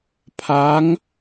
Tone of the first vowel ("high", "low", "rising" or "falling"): rising